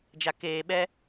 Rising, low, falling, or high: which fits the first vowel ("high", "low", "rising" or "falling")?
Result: low